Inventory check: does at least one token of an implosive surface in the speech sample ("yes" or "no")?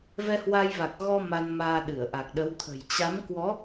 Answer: yes